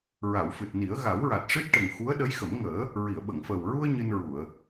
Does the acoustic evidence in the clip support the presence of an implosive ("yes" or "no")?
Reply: yes